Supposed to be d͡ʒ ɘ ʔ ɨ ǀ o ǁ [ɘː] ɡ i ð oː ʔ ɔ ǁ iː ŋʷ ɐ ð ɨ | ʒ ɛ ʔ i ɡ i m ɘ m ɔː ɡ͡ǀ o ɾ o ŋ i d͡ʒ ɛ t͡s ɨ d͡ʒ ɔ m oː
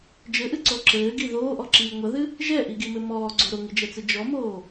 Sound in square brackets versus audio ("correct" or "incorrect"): correct